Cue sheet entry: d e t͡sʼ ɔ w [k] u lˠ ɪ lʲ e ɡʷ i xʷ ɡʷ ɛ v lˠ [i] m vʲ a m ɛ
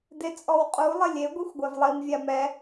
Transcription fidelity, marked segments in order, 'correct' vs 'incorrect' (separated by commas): incorrect, correct